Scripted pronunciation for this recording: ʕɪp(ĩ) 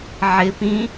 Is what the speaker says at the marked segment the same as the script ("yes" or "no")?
yes